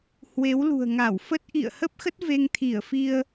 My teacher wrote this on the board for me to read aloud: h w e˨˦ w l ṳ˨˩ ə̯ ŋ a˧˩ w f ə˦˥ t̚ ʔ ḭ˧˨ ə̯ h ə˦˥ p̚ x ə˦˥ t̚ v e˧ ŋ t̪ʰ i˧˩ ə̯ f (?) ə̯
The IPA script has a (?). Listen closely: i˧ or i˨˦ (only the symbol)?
i˧